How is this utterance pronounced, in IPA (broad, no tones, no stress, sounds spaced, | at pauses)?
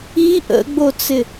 i ʔ ə̰ ɡ͡b o t͡s ɪ